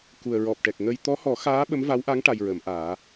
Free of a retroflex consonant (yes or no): no